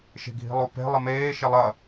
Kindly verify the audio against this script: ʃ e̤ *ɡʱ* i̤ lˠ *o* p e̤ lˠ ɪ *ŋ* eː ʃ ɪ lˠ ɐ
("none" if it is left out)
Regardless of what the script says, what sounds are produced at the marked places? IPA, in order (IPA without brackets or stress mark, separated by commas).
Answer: ɡʱ, o, m